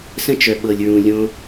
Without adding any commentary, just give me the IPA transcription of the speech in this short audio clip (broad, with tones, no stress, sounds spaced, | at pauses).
s ə̃˦ t͡ʃ œ˨ ɓ ɤ˨ lʲ ɹ ũ˨ lʲ õ˧